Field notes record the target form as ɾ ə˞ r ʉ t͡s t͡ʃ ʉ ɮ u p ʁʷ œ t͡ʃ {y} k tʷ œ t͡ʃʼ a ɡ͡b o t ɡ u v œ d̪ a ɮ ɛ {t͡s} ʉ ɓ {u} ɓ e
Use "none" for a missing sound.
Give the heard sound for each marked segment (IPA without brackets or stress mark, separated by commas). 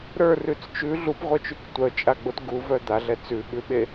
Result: y, t͡s, ʉ